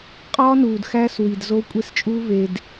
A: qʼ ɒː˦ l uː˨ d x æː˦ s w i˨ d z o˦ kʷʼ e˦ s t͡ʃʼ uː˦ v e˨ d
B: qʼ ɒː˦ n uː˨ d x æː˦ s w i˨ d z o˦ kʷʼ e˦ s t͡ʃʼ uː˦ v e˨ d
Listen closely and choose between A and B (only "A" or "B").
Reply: B